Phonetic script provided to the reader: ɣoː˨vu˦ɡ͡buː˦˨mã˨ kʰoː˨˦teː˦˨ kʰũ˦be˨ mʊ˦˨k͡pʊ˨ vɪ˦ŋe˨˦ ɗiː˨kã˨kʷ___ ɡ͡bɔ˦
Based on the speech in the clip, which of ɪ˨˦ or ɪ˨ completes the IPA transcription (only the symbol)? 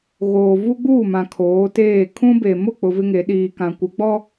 ɪ˨˦